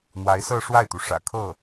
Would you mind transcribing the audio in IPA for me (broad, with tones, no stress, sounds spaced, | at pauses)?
n̪ w a˧˥ ɪ̯ s ɤ˥˧ ʂ w a˥˩ ɪ̯ t̪ u˩ ʂ ä̰˨˩ kʰ ɤ˥˩